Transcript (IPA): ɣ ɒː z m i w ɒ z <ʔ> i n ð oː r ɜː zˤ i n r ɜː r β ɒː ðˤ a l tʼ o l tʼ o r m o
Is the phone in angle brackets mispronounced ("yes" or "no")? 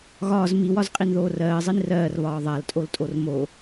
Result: yes